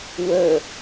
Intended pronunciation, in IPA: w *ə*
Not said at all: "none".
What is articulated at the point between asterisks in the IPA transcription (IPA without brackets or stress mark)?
ə